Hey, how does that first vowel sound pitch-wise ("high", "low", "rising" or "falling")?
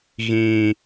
high